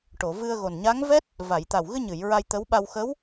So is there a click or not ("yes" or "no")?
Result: no